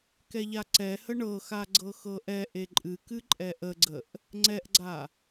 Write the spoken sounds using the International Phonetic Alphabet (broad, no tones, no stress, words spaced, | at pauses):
kɛʎaǀɛhə ɳɤxa ɡ͡ǀɤxɤʔɛʔe ǃʼɨkɨ ǃʼɛʔəɡ͡ǀəʔ | ŋ͡ǀɛʔɡ͡ǀa